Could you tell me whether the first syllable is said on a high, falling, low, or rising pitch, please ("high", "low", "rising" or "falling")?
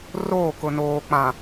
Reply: falling